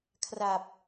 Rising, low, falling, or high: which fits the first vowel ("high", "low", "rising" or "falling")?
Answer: low